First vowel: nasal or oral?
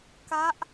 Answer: oral